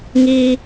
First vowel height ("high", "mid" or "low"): high